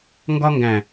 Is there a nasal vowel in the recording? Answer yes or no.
yes